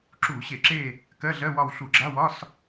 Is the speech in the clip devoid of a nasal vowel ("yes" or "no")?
yes